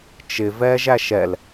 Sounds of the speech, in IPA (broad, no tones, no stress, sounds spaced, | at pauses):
t͡ʃ ɪ v ɛː ʒ æ ʃ ɛ l